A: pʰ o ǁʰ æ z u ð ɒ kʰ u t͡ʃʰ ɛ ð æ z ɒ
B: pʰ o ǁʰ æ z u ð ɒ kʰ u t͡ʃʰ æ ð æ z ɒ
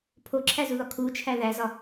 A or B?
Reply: B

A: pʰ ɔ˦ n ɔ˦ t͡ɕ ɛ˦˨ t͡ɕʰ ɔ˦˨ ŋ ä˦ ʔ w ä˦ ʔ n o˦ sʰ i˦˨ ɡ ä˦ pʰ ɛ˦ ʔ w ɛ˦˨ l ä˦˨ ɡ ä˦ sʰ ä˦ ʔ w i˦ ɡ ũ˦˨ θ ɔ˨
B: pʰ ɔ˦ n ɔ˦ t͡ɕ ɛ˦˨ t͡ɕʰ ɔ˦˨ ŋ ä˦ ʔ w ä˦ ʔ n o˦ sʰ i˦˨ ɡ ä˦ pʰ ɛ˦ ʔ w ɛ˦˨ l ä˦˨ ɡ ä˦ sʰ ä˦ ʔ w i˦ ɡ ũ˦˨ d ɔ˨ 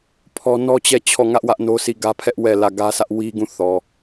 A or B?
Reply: A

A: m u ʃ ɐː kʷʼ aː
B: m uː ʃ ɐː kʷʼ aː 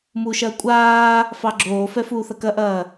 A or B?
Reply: A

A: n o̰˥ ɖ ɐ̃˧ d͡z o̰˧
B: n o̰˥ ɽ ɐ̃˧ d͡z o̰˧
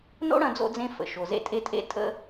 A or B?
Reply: B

